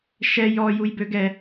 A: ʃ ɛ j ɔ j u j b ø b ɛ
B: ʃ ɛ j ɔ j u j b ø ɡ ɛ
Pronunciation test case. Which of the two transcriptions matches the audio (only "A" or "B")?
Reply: B